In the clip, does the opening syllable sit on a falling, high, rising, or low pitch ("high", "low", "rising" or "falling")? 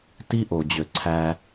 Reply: high